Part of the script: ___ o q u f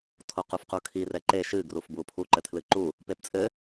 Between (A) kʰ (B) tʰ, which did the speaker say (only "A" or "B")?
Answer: B